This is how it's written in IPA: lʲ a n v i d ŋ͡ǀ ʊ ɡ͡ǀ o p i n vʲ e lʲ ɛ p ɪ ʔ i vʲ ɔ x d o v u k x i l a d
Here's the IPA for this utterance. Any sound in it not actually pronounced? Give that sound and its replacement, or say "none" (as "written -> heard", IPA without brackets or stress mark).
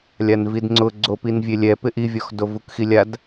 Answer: l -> lʲ